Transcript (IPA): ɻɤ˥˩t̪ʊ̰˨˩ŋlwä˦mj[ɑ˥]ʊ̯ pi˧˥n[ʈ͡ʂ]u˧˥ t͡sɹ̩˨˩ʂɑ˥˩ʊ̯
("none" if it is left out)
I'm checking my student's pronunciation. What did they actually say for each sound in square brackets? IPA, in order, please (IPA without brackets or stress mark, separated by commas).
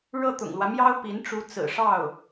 ɑ˥, ʈ͡ʂ